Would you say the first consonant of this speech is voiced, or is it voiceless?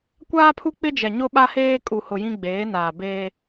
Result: voiceless